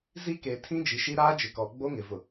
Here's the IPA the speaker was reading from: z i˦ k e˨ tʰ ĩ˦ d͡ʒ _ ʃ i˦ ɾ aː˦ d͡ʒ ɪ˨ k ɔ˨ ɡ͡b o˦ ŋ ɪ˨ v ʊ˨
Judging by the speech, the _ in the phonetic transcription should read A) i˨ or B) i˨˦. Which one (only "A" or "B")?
A